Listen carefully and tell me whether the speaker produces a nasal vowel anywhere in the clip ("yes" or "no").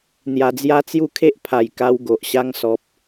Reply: no